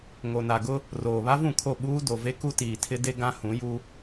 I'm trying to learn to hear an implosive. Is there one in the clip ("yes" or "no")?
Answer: yes